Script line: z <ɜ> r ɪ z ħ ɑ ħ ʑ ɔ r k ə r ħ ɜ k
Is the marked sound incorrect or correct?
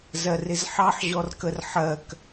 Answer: correct